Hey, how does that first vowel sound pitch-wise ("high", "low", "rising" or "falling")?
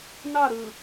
falling